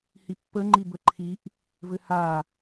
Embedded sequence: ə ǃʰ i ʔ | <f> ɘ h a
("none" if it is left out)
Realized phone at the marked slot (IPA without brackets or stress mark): v